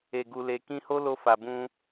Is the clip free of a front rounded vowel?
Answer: yes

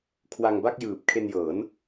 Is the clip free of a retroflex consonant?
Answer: yes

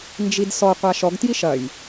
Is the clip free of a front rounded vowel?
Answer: yes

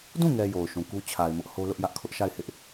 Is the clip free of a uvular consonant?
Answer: yes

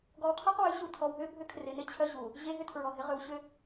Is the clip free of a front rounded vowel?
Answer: no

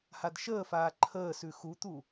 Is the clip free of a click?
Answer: no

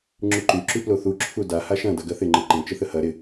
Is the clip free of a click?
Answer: no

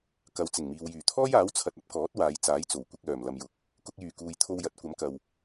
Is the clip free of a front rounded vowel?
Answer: no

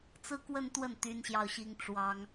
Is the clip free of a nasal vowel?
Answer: yes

